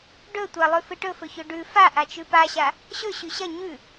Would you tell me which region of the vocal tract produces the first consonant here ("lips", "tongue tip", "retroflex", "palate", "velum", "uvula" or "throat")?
retroflex